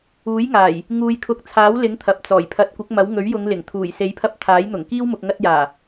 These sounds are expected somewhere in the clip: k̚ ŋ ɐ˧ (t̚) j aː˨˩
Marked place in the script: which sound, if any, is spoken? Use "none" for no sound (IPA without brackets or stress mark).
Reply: t̚